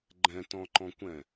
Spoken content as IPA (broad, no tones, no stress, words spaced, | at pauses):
ɡ͡ǃɛ̃tɔ̃ǃɔ̃kʷɛ̃